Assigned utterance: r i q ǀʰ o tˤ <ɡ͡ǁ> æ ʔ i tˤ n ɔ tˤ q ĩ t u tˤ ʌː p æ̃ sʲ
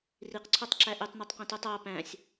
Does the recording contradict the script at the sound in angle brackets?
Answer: yes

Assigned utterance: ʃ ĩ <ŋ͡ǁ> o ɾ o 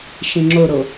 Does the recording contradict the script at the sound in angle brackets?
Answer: no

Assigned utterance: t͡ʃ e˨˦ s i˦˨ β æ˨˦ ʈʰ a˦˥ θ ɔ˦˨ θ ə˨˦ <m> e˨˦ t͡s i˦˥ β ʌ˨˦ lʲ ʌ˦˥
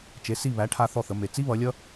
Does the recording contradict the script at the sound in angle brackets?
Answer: no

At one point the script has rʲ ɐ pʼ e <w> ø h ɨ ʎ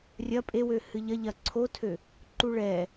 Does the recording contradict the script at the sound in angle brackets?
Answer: no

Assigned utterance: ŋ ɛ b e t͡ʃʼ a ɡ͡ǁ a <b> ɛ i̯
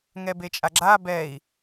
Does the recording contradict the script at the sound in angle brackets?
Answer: no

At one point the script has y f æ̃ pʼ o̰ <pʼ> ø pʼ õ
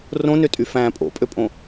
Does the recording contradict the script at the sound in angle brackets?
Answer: no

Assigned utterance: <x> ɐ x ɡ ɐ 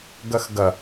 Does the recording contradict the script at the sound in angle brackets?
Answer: yes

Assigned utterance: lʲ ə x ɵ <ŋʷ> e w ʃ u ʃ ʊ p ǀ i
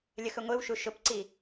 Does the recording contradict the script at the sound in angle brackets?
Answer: no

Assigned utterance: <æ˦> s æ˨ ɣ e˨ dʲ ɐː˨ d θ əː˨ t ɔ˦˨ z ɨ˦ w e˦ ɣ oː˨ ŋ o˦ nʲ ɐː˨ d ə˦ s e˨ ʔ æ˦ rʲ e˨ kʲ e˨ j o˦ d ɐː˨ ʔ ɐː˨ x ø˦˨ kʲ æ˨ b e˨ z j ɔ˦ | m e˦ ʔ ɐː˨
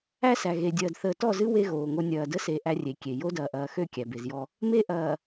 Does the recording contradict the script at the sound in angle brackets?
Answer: no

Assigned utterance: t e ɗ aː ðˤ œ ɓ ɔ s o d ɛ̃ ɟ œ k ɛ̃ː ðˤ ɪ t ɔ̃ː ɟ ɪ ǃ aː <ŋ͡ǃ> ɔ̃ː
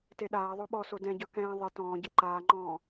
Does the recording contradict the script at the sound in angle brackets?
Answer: no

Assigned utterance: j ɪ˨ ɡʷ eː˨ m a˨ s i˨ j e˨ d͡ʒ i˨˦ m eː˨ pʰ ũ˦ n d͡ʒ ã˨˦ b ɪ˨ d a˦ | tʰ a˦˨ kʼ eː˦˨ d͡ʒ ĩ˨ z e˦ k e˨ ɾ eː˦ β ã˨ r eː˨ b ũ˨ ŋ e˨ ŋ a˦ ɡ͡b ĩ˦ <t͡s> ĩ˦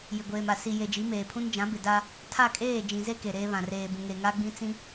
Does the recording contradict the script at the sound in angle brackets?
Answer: no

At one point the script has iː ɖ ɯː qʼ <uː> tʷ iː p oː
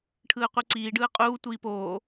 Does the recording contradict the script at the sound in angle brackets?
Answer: no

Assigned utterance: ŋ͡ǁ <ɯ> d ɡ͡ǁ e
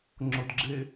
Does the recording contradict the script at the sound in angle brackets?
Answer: yes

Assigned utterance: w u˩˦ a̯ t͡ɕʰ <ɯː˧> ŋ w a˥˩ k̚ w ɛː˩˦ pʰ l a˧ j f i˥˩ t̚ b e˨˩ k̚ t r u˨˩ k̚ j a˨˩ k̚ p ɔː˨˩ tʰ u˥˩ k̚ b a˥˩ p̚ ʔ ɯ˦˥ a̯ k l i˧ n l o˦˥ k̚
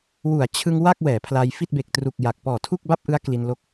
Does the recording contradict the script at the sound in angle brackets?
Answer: yes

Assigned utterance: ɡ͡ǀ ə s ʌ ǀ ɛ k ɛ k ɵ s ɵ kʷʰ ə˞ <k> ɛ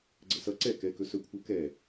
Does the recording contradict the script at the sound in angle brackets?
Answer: no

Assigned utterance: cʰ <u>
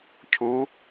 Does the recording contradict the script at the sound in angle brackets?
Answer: no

